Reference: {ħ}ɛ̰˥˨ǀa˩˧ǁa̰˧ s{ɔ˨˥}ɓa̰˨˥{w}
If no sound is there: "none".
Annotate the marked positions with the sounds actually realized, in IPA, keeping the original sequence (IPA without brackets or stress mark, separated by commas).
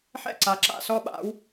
ħ, ɔ˦˥, w